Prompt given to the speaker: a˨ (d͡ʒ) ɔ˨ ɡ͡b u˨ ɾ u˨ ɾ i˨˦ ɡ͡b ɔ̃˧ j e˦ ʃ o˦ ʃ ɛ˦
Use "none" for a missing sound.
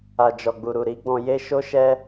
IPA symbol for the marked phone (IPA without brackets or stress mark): d͡ʒ